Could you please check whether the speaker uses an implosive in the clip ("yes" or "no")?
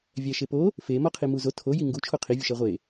no